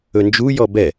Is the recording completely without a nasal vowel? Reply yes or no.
yes